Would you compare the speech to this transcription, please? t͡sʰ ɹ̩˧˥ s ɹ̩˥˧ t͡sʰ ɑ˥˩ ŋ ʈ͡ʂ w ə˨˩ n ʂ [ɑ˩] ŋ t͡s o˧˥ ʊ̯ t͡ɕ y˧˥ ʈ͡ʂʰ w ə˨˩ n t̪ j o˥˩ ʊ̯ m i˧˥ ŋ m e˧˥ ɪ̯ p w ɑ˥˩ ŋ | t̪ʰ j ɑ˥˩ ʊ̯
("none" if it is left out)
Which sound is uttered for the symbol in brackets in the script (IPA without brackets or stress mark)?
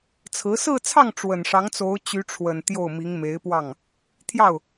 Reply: ɑ˧˥